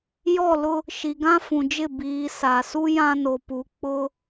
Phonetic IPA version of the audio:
j ɔ˦˨ l ʊ˦ | ʃ i˨ ɡ ã˦ f ũ˨ d͡ʒ ɪ˦˨ b iː˨ s a˨ s u˦ j ã˦ n o˨ p u˨ k͡p ʊ˦

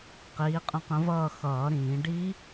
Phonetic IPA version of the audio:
q iː˨˥ qʼ ə̃˥˧ q ə̃˦˥ v ʌː˥˧ x ʌː˨˩˦ ɾ ĩː˨˩˦ ɖ i˦˥

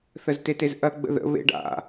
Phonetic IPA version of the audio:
θ ə z t e t e z ʔ ɐ ɡ͡b ə̰ ð ə̰ β ḛ ɖ a̰

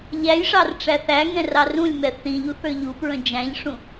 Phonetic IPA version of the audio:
ʎ æ j ʂ ɑ r ʈ͡ʂ æ θ æ ŋ ɛ̃ r ɑ r ũ lʲ m ɛ θ ĩ ʎ u θ ə˞ ʎ u p ɹ ə̃ d͡ʒ æ̃ ʎ ʂ ũ

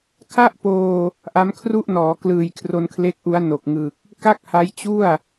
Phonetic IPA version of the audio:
kʰ a˥˩ ʔ p oː˧ | ʔ a˦˥ m kʰ r u˥˩ ʔ n ɔː˩˦ k l ɯː˨˩ j kʰ r o˧ n kʰ l e˦˥ k̚ ʔ u˦˥ a̯ n o˨˩ k̚ ŋ ɯ˨˩ k̚ | k a˥˩ k̚ h a˦˥ j t͡ɕ u˥˩ a̯

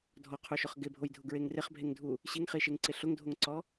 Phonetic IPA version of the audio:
dʱ ɔ qʰ u ʃ ʊ χ ɡ ɪ bʱ o j dʱ ʊ ɡ ɹ e ŋ r ɪ χ bʱ e ŋ dʱ u | ɕ i ŋ χ i ʃ e ŋ ǀ ɪ ɬ ʊ ŋ dʱ o ŋ ǀ ɔ

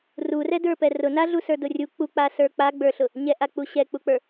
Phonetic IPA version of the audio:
r u r ɛ d ə˞ p ɛ r ʊ n a ɮ u s ə˞ d ʊ rʲ u k͡p u k͡p a s ə˞ k͡p a ɡ͡b ə˞ ɬ ʊ | ɲ ɛ ʔ a k͡p u ɕ ɛ k͡p u k͡p ə˞

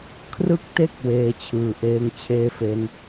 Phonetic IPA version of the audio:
kʰ r ɯ˦˥ k̚ t e˦˥ k̚ w eː˧ t͡ɕʰ ɯː˨˩ ʔ eː˧ ŋ t͡ɕʰ eː˥˩ f e˦˥ n

